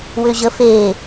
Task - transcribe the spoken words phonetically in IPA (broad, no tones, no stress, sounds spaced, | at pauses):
w ʏ ʑ ə f e